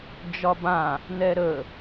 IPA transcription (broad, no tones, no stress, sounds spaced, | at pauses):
d͡ʒ ɒ b ã | n̪ ɛ ɾ ə